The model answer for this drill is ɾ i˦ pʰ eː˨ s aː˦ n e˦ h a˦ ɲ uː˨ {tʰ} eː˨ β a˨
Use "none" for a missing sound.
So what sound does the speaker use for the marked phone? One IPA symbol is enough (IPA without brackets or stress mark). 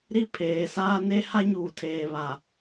tʰ